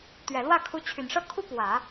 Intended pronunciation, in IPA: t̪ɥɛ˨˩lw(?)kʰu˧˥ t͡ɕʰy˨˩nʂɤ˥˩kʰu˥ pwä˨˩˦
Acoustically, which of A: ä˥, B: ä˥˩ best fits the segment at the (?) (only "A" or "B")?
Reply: B